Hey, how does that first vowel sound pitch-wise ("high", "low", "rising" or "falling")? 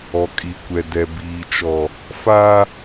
low